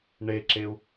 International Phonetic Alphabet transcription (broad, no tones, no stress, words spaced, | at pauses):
ɳeǁeu̯